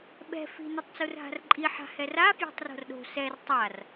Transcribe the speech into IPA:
ɓɛ̤ fi̤ nutˤt͡surɦa̤rǃʼi ħa̤hɛra fjo̤tˤro̤rɗo̤ sɛr tˤar

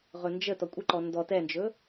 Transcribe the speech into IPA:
ʁɵnd͡ʒə tɔkʷʼəǃɔ ndɔ tɛnd͡ʒɵ

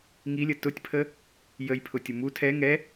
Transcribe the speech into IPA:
ŋilʲə tʊtʲpʰə | jəjpʰʊtʲʊ mu tʰɛ ŋɛ

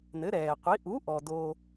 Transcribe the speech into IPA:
nɘ˩˥ɾɛː˩qʷi˩˥ ʔu˩˥ʔɔ˩ doː˩

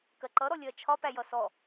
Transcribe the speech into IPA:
kɜǃʌ ɾɔlʲɜt͡ʃʰɒ pæjʌsɔ

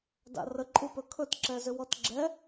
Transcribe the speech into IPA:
da̰rəǃʼupɵ kʰɵtǁɛzʏ wɔtɡ͡ǁɛ

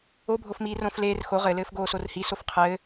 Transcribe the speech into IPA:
obʱofmiː rõfleːr xo ʁɘlɘːf ɡoːsorhi sofqʰɘː

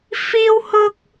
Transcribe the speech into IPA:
fiː˥whʊ˥k̚

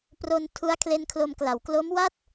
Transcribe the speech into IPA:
pro˧n tʰu˦˥a̯ kʰle˧nkʰlo˧mkla˩˦w klo˦˥mwa˥˩t̚

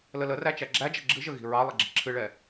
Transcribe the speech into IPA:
lələræ t͡ʃæɡ͡ǁæd͡ʒɛ ɡ͡ǁɨʒə ɣi̤ɹɑlˠɪ ɡ͡ǁi̤ǁʰɨɭɛ

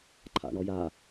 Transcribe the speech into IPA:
ǃʰa̰ɳɔja

